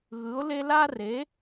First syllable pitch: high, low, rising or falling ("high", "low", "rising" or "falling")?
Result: rising